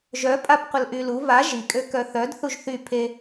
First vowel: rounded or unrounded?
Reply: rounded